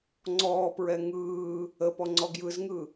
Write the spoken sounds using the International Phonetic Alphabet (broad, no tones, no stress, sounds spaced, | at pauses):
ŋ͡ǀ ɔː p ɹ ɛ ŋ ɯː | ə p ɔ ŋ͡ǀ ɔ ɡ j ɯ z ŋ ɯ